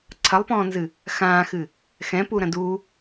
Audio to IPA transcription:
ǀʰ ɐ lˠ p ɔ̃ː n z ɨ | x ãː x ɨ | x ɛ̃ p u ɾ ɐ̃ d u

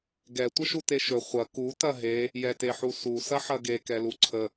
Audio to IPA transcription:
ɡ ɛ tʷ ə ʃ u t e ʃ ɵ χʷ ɐ k u t ɐ ɦ e | j ɛ t e ħ u s u s ɐ ħ ɐ ɡ e k ɛ l u ǀʰ ə

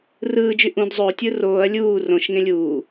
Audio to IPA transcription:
r ɯː d͡ʒ y ʔ ũ d zˤ o tʲ ɯ r oː ɐ̯ lʲ uː r õ ʃ ŋ ẽ lʲ uː

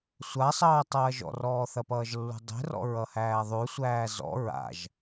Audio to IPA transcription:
sʷ a sˤ ʌː tˤ ɐː ʒ ɔ̰ r ɔː θ ɐ p ʌː ʒ lː ṳ dˤ e̤ r ɔ̰ ɹ ʌ h æː ðˤ ʉ sʷ æː z ɔ̰ ɹ a̰ ʒ

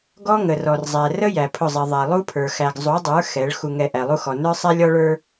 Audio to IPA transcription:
ɡ ɔ˦ ŋ ə˨ r ɔ˨ r zˤ æ˨ r ə˦ j æ˨ pʰ ʊ˦˨ zˤ i˨ ðˤ æ˨ lˠ u˦ pʰ ə˞˨ x æ˨ ɡ zˤ u˨˦ dˤ ə˞˨˦ x ɛ˨˦ ɭ x u˨ ŋ ɛ˨ ʔ æ˨ lˠ u˦ x ɔ˨ n ə˞˦ sˤ ɛ˦ lʲ ɔ˦ ɭ ə˞˦

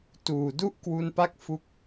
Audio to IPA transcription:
t uː˨˩ d u˥˩ ʔ k w u˧ n p a˦˥ k̚ f u˦˥ k̚

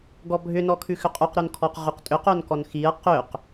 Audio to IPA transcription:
ɡ ɔ bʱ ʏ n ɔ kʰ ʉ x ʏ qʼ ʉ q ɾ o n kʰ ɔ q ʁ ʉ q tʼ ʏ q o n k ɔ n x i ɐ̯ q ʏ q

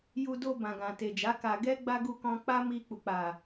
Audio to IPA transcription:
j u˧ d o˧ b ã˨ ɡ ã˨ t e˨ d͡ʒ a˨˦ k a˧ ɡ ɛ˦ ɡ͡b a˦ ɡ u˧ k ɔ̃˧ k͡p a˦ m i˧ k͡p u˨ k͡p a˨

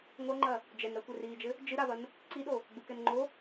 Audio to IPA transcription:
ŋʷ ɐ ŋ͡ǃ ɐ | d͡ʒ ɛ n ɾ ɐ kʷ ɛ r iː d͡ʒ ɘ | d͡ʒ ɨ ɾ a v ɐ n | ǀ i ɗ o | ɡ͡b u k ɛ n ŋ͡ǃ o

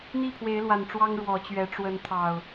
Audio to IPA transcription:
n̪ i˥˨ pʰ w e˨˦ ɪ̯ l w a˨˩ n ʈ͡ʂ w ɑ˦ ŋ ɻ w ɔ˨˦ t͡ɕ ɥ ɛ˨˦ ʈ͡ʂ w ə˨˦ n t̪ʰ ɑ˨˩ ʊ̯

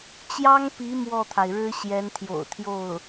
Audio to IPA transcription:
t͡ɕ j ɑ˥ ŋ p i˧˥ m w ɔ˥˩ t̪ʰ a˩ ɪ̯ ɻ ɻ̩˥ ɕ j ɛ˧˥ n t̪ʰ j o̰˨˩ ʊ̯ t̪ʰ j o˥˩ ʊ̯

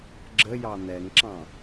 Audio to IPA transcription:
ɡ͡ǁ ə j ɑ n̪ ɛ ŋ ǁ ɑ̃

